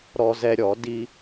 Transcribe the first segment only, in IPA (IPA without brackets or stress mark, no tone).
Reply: ɾ